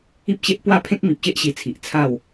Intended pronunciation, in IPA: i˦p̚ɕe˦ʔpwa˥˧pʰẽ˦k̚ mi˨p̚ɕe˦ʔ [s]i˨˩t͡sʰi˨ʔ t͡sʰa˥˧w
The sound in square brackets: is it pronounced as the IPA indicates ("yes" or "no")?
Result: no